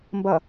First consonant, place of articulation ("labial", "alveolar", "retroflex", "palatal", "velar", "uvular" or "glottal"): labial